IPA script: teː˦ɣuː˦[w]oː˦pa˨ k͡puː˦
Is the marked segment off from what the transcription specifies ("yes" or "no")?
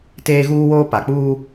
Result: no